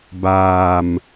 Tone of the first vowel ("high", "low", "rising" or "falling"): low